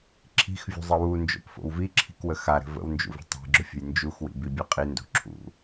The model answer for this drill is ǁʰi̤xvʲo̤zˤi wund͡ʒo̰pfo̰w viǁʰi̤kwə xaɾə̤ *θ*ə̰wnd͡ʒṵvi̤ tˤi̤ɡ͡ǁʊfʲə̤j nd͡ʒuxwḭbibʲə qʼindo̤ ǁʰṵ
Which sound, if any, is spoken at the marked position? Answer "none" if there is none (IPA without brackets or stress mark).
v